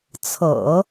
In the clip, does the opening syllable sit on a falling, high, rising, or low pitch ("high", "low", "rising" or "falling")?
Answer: low